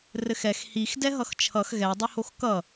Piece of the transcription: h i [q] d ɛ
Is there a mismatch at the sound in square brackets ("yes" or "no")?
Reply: yes